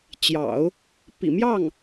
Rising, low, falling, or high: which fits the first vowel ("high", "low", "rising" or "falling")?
low